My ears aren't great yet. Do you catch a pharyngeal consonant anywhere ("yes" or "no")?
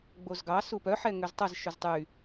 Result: yes